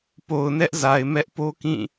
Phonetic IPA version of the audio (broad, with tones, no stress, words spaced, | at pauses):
po˨ʊ̯nɛ˦ʔza˨ɪ̯ mɛ˦ʔpo˦kĩ˦˨